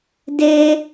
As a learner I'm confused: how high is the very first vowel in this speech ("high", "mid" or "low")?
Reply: mid